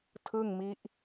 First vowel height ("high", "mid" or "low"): high